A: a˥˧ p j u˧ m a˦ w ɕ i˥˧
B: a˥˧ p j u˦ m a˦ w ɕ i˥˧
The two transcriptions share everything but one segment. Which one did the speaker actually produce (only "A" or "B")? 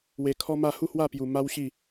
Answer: A